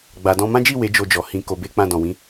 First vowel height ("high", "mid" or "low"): low